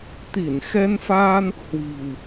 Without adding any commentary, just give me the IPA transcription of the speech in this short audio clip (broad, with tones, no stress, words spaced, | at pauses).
t̪i˧˩nxɛ˧nfaː˧n | hwi̤˨˩w